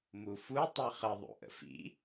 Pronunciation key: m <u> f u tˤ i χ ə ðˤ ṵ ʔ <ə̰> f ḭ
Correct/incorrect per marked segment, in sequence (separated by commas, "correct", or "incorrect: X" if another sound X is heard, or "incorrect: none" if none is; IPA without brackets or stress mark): correct, correct